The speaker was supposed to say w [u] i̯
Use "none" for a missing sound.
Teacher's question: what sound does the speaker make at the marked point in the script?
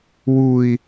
u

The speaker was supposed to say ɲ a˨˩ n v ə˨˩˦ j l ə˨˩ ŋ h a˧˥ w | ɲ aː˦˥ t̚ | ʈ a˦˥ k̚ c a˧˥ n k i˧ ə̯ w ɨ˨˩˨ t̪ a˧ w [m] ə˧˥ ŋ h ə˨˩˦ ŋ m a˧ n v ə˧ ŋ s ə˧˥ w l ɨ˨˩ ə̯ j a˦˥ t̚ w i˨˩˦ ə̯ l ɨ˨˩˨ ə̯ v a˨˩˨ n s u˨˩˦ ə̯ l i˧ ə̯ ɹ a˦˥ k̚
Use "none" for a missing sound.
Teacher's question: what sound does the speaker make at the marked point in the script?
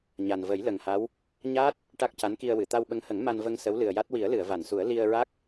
ɓ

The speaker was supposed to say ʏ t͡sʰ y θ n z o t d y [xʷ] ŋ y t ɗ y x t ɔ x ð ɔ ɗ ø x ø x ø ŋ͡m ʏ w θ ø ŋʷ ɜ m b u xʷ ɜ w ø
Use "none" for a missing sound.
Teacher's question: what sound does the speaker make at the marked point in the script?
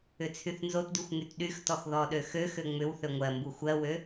xʷ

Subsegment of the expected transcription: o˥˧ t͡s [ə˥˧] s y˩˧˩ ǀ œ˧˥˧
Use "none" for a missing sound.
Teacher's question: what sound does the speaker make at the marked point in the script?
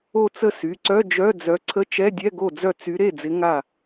ə˥˧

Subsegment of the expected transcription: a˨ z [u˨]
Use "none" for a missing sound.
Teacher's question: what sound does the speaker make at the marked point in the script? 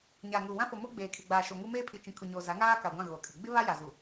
u˨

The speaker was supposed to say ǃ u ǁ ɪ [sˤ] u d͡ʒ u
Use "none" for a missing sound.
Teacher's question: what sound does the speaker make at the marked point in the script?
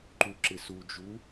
s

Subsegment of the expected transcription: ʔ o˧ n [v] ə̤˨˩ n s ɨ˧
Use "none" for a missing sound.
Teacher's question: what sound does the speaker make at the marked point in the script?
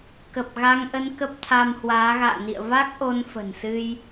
f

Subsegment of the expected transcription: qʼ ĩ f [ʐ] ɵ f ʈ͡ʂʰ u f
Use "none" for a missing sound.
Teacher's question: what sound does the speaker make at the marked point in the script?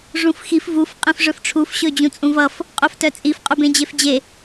ʐ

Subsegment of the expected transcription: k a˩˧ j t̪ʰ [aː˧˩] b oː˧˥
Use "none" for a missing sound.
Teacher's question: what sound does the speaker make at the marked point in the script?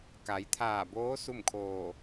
aː˧˩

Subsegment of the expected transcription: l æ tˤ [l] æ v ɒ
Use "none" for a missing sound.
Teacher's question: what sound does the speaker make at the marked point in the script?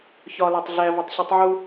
ɮ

